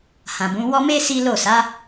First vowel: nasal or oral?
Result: nasal